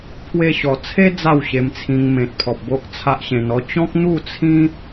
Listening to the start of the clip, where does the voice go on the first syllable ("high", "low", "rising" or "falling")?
high